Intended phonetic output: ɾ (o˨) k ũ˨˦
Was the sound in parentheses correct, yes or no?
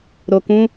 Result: yes